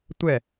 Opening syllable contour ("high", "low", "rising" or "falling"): falling